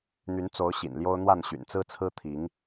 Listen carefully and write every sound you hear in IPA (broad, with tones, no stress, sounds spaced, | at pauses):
n̪ y˨˦ n t͡s o˨˦ ʊ̯ ɕ ḭ˨˩ n l j o˦ ʊ̯ n̪ w a˥˨ n ɕ y̰˨˩ n t͡s ɹ̩˦ t͡sʰ ɹ̩˦ t̪ʰ i˨˦ ŋ